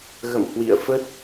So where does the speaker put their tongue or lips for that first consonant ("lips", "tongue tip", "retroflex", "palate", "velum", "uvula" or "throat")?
velum